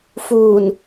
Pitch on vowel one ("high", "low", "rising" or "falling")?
low